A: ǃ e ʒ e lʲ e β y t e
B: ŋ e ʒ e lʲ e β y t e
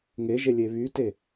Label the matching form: B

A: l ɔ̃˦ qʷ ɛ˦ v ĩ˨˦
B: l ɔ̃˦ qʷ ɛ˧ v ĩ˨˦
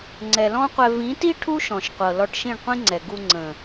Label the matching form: B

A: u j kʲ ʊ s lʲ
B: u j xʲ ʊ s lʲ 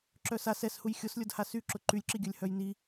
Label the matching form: B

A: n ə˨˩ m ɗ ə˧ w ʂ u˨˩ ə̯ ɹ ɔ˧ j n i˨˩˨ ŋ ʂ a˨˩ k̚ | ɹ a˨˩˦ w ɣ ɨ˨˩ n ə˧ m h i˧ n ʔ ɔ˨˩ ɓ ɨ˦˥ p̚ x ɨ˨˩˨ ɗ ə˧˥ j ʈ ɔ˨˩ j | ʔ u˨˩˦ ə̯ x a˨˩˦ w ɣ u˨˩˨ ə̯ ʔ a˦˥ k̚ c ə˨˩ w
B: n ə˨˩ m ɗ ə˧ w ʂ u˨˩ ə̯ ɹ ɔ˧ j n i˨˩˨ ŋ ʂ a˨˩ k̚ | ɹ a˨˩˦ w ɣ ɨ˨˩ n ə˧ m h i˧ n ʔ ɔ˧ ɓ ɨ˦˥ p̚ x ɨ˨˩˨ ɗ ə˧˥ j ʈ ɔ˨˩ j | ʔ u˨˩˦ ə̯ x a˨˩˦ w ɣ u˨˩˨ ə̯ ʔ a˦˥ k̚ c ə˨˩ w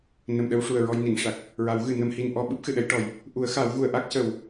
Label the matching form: B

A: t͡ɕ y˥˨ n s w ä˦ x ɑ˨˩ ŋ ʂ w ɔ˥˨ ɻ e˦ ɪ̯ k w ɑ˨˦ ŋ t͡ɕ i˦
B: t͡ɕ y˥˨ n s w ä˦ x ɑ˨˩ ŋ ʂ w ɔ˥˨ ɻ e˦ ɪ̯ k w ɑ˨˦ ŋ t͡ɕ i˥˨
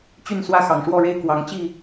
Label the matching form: B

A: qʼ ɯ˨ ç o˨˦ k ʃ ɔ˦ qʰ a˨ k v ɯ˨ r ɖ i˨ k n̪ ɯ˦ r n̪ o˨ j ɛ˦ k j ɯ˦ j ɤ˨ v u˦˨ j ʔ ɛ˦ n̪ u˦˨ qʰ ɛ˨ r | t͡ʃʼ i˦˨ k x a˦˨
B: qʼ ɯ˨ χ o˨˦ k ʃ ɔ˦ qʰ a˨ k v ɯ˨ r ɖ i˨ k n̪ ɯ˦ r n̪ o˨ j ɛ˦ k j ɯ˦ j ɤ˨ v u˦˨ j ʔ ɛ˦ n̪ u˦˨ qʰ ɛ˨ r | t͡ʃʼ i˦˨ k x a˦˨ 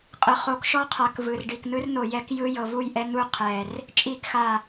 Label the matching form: B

